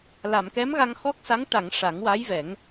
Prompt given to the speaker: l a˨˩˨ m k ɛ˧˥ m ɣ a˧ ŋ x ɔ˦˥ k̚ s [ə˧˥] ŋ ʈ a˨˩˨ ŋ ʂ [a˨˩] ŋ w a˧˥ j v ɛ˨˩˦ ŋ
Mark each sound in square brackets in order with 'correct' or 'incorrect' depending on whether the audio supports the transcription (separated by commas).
incorrect, incorrect